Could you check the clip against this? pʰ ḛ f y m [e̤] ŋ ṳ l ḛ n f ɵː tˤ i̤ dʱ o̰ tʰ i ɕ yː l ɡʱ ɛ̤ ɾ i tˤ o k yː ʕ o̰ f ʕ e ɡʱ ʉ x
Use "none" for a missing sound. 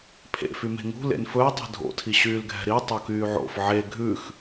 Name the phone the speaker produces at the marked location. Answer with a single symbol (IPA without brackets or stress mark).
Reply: e̤